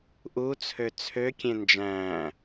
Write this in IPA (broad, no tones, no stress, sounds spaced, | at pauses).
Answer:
ʔ u t͡sʰ ø t͡sʰ ø kʲ ẽ n d͡ʒ æ̃ː